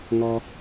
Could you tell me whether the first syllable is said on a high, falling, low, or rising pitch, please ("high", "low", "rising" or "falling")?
low